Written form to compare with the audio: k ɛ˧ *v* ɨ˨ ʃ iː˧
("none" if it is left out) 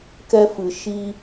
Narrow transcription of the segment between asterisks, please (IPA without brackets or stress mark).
f